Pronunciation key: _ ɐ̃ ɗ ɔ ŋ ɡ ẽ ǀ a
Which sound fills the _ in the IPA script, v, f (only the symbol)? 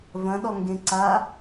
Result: v